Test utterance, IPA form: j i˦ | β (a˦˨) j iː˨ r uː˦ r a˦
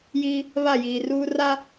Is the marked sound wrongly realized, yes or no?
no